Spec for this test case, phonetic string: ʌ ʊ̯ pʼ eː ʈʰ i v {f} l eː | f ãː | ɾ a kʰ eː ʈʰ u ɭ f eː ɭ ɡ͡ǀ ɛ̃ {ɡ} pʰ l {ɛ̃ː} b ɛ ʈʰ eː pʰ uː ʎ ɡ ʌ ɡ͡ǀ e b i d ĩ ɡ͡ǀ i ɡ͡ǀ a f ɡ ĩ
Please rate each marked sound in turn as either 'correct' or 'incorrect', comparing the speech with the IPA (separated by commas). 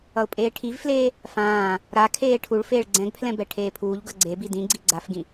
correct, correct, incorrect